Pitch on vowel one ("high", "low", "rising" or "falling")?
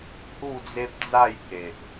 falling